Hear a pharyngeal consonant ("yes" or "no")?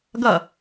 no